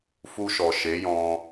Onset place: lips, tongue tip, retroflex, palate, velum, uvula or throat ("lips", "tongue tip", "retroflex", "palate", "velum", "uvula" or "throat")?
lips